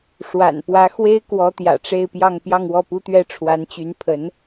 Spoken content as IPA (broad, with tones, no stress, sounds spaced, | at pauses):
ʂ w a̰˨˩ n p w ä˧˥ x w e˥ ɪ̯ k w ɔ˧˥ t̪ j ä̰˨˩ ʈ͡ʂ e˥˧ ɪ̯ p j ɑ˥˧ ŋ p j ɑ˥˧ ŋ w ɔ˥˩ p u˥ t̪ ɥ ɛ˥ ʈ͡ʂʰ w a˧˥ n t͡ɕ y˧˥ n pʰ ə˧˥ n